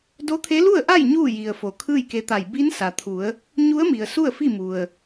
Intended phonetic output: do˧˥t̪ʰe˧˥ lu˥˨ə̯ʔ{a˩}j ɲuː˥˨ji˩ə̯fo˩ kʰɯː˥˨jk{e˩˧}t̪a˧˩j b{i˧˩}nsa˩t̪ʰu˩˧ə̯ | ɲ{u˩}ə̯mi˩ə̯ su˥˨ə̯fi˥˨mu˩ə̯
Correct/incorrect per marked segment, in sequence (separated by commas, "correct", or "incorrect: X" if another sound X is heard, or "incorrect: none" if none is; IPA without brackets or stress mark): incorrect: a˥˨, incorrect: e˧, incorrect: i˧˥, incorrect: u˧˥